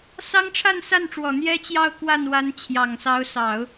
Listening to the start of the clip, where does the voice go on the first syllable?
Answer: high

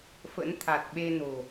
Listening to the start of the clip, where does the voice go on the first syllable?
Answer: rising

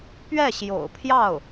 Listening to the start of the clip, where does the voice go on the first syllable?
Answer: falling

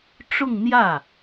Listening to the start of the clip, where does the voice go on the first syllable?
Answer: falling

